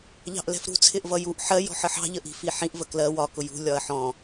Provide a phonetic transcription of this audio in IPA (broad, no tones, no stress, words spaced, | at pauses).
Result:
ʎɑ̤ʔlɛ̤fɾṳ t͡sʰɪʔvʌjuʔ ħɜ jɔ̤ħəħɑ̤ ʎəʔi̤fiħĩʔ vəklɜ wɒ kʊjṳ lʲɒɐ̯ħɔ̃